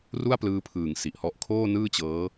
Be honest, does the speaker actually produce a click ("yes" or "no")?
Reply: no